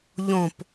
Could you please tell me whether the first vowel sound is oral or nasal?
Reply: nasal